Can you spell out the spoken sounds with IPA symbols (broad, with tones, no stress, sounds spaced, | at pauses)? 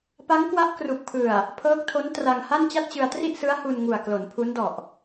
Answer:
p a˦˥ ŋ k w a˦˥ ʔ k r u˨˩ k̚ pʰ ɯ˨˩ a̯ | pʰ ɤː˦˥ k̚ tʰ o˦˥ n t r a˧ ŋ h a˥˩ n t͡ɕ a˥˩ t̚ t͡ɕ ɯ˧ a̯ t r i˥˩ ʔ s ɯ˦˥ a̯ h u˧ n ŋ u˨˩ a̯ k l o˩˦ n pʰ u˦˥ n d ɔ˨˩ ʔ